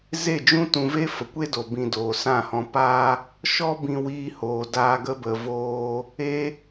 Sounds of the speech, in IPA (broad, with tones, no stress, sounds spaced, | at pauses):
z e˦˨ d͡ʒ ũ˦ t ũ˧ v e˦ f ə˨ kʷ e˦ d o˨ b ĩ˧ d oː˨ s ã˦˨ h ɔ̃˧ p a˧ | ʃ ɔ˦ b ĩ˧ w iː˧ h oː˨ d aː˧ ɡ ə˧ b ə˨ v oː˧ | e˦